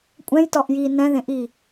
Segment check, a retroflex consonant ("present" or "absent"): absent